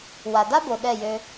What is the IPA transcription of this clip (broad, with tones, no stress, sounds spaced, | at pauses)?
w a˨ d a˦ b o˨ ɗ ɛ˦˨ j ø˧